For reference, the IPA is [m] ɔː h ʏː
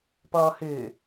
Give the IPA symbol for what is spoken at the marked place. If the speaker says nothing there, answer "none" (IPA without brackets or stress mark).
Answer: p